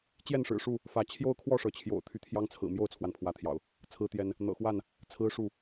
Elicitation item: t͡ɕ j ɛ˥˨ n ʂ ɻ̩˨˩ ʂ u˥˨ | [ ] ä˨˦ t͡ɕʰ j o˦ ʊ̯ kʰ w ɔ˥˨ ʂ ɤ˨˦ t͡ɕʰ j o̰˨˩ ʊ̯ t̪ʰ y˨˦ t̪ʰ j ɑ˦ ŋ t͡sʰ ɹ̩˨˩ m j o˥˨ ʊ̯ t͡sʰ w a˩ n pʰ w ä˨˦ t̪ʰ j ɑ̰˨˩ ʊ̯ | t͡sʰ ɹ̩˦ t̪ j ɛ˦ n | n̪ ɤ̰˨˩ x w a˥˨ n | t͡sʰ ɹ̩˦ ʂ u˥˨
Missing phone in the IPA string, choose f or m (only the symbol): f